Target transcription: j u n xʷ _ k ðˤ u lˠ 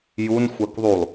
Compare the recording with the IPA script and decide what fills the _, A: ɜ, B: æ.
A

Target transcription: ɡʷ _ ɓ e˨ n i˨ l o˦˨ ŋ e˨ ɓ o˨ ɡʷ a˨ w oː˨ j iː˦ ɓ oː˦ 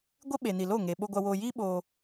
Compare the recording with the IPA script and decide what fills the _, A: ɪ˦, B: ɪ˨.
A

